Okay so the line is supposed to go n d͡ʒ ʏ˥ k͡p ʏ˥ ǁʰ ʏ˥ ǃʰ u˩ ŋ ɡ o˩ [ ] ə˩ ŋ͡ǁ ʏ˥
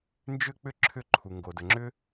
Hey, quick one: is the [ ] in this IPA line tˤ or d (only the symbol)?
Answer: d